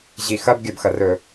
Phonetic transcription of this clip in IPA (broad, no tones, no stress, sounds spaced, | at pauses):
ʑ i x ɐ b ɡʲ ɐ b x ɐ r ɵ